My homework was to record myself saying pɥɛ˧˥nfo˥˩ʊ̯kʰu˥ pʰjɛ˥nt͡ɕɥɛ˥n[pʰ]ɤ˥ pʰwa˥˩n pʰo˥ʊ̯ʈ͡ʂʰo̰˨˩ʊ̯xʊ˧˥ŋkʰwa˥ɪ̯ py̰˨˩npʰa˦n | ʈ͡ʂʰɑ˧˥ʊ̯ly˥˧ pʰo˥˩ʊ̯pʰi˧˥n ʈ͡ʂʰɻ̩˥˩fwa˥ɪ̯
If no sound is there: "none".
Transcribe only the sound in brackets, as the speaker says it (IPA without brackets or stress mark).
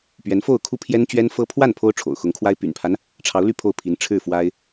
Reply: f